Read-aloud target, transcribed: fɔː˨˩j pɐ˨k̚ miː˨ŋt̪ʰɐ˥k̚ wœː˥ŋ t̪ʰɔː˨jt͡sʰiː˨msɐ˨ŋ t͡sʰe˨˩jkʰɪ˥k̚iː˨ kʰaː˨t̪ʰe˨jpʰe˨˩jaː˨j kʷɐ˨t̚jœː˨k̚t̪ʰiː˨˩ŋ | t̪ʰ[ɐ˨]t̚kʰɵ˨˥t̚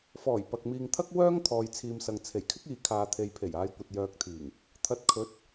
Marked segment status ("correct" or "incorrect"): incorrect